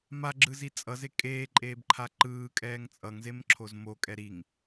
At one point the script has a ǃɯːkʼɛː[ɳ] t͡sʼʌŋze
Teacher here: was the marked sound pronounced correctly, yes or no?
no